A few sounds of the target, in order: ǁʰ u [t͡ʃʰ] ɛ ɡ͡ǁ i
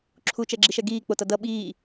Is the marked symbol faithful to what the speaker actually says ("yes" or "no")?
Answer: no